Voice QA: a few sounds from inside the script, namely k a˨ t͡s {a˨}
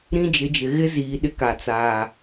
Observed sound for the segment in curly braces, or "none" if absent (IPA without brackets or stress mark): aː˨